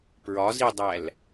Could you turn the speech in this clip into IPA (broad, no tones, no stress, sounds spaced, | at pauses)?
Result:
p ɹ ɒ z i dˤ æ l